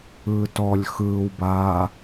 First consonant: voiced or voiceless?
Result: voiceless